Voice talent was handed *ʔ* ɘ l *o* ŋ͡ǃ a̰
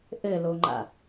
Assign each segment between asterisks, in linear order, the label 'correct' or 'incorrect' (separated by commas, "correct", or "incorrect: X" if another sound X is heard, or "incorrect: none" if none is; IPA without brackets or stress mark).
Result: correct, correct